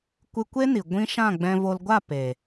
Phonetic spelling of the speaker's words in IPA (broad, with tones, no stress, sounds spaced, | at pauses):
kʷ ɨ˧ kʷ e˦ n i˨ ɡʷ ĩ˦ ʃ ã˦˨ ɡ͡b ɛ̃˧ v o˧ l ɡʷ a˦˨ p e˨